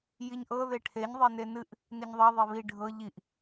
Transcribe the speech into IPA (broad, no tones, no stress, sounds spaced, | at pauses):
j i ɲ ʔ ɤ ð e ʈʰ e ɲ ðˤ e n e n ɨ ʔ | n i ɲ ðˤ ɑ ðˤ e β i ɖʱ ɤ ʎ i ʔ